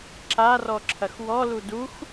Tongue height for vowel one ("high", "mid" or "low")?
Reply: low